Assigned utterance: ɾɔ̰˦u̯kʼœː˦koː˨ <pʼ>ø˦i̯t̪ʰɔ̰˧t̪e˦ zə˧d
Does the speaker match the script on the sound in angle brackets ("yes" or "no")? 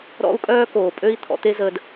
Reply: yes